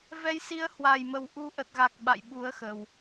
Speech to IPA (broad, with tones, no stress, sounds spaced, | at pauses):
v ɛ˨˦ j s i˨˦ ə̯ h w a˨˩ j m ə˨˩ w ʔ u˨˦ ʔ ə˨˩ t̚ ɣ a˨˩ k̚ ɓ a̰˧˨ j ɓ u˨˦ ə̯ x ə˨˩ w